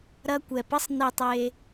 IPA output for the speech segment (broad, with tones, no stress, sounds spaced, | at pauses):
ɾ ɐ˧ kʷ ɛ˨ p ə˦ sˤ n i˧ tˤ e˧